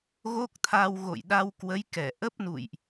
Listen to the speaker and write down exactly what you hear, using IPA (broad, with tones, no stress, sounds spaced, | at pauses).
ɣ o˦˥ k̚ t̪ʰ a˧ w ɣ o̰˧˨ j ɗ a˧ w k w ə˨˦ j k ɛ˧˩ ʔ ə˦˥ p̚ n ṵ˧˨ j ʔ